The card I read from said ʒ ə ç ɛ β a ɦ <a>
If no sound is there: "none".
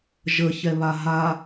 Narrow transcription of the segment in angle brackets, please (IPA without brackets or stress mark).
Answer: a